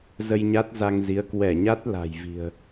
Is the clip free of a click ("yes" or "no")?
yes